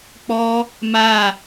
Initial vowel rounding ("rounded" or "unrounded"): rounded